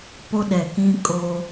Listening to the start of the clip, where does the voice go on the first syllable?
high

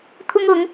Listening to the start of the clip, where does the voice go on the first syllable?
high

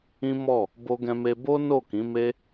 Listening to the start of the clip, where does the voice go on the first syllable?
high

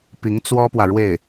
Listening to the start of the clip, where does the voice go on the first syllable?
rising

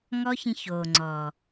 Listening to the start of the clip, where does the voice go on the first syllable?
high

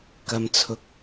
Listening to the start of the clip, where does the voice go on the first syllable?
low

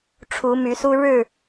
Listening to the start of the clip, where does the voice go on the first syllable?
rising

